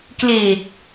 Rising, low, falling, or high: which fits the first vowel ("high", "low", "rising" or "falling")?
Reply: low